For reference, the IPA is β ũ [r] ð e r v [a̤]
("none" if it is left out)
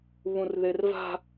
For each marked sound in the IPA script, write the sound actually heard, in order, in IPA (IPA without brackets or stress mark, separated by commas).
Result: r, a̤